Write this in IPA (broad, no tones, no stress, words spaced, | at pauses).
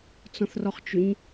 t͡sɔ̃θrɔχt͡ʃʏɲ